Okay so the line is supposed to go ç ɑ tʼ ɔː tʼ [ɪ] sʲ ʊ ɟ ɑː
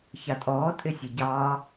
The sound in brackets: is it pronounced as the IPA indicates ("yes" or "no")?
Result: yes